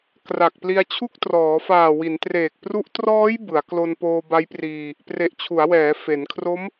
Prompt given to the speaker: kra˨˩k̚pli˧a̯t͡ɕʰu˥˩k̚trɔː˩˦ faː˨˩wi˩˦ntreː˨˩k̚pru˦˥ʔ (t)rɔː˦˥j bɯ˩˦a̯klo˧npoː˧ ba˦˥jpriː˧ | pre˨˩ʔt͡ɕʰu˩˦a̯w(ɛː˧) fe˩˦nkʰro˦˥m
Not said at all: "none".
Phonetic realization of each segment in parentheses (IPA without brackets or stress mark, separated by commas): t, ɛː˩˦